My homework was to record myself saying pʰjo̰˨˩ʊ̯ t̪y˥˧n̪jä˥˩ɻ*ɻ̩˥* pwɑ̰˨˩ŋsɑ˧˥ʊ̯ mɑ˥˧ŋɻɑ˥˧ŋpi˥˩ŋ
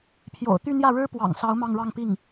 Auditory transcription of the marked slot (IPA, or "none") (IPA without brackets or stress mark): ɻ̩˥